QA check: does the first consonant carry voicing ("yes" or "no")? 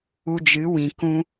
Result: yes